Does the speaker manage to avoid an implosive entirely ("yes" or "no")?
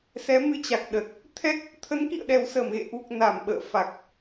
no